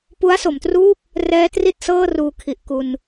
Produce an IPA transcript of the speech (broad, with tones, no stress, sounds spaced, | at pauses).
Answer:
p u˦˥ a̯ s o˩˦ m t r uː˥˩ p̚ | r ɛː˦˥ t r i˥˩ t̚ s ɤː˥˩ r uː˧ kʰ i˨˩ ʔ k u˧ n